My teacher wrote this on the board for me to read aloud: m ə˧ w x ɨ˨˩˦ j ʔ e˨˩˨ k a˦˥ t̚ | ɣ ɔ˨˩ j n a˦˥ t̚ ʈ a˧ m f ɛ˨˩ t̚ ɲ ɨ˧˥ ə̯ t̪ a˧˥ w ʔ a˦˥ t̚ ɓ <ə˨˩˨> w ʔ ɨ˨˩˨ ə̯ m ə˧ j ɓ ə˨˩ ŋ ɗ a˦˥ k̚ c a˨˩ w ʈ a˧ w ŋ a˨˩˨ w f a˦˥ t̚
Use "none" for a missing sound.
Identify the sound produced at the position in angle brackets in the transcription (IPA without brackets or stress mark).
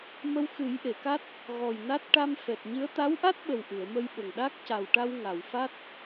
ə˨˩